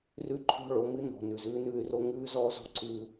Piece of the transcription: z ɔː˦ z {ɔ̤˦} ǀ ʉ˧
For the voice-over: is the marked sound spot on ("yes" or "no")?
yes